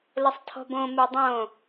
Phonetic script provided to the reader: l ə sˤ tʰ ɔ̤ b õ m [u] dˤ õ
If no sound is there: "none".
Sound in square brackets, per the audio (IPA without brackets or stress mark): u